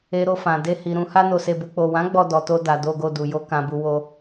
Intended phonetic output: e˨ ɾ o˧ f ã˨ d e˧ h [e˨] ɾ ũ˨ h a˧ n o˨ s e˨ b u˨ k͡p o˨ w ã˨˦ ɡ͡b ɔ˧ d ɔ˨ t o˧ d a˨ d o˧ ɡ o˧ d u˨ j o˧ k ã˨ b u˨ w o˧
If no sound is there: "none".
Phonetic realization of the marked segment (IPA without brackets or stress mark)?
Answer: i˨